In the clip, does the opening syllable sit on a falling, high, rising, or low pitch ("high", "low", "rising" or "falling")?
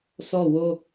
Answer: falling